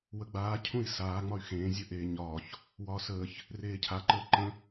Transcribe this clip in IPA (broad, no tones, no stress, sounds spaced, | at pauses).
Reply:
w ə ɡ͡b aː cʰ ũ i̯ s aː ŋ͡m ɒ y̯ x ẽː zʲ ə ʔ eː ɲ ɒː ç | w ɒː s əː ç | r eː cʰ a ǃ əː ǃ ə̃